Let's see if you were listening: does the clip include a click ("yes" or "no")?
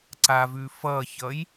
yes